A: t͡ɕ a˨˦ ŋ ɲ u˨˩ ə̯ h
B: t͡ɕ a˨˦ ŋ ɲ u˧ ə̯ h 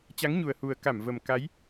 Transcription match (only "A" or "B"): A